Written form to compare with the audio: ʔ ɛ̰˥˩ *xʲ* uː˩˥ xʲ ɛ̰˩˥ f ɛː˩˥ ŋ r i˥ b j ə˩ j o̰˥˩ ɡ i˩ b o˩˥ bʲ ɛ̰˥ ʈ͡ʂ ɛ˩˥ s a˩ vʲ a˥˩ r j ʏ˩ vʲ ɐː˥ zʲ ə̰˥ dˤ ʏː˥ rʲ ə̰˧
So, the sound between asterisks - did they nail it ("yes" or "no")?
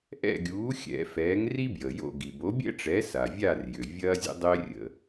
no